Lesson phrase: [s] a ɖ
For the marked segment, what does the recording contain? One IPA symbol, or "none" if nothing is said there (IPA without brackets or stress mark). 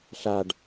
ɬ